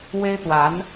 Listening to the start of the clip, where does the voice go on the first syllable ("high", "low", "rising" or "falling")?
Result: high